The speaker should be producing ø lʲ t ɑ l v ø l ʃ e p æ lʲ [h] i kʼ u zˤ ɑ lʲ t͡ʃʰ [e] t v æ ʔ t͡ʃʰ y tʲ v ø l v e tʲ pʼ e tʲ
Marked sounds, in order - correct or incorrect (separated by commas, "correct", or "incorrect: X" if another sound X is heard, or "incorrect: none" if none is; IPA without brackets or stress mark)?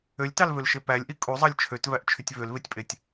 incorrect: ʔ, incorrect: ø